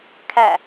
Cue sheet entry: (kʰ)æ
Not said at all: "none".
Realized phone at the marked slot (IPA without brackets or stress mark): kʰ